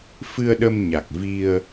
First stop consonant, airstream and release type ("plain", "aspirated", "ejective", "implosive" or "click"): implosive